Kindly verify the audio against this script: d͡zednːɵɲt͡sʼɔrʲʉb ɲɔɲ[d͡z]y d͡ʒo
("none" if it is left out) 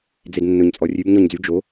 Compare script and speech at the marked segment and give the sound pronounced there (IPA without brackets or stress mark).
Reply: d͡z